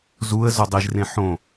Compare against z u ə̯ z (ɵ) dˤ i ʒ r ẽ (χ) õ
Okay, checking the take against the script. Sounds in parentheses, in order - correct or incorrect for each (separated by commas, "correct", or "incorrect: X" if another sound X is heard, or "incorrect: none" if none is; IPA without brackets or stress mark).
correct, incorrect: ħ